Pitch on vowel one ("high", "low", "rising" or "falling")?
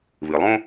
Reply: low